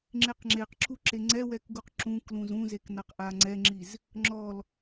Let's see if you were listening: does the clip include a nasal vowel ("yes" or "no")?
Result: yes